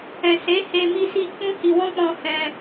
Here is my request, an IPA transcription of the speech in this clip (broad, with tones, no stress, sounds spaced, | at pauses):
ɛ̃˨ s e˨˦ h e˧ m i˦ s i˦ k͡p ũ˦ h i˧ w ɔ̃˦ k͡p ɔ̃˧ h ɛ̃˧